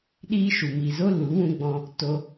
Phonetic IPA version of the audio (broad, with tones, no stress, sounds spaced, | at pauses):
ɗ iː˦ ʃ u˨ m iː˨ z o˦ l u˨˦ w ũ˧ ɡ͡b ɔ̃˧ | t o˧